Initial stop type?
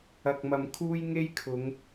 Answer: plain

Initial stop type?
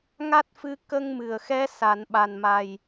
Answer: plain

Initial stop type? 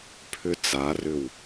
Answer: aspirated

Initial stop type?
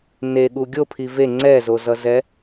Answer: implosive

